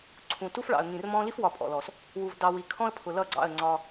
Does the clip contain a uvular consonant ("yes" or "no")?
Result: no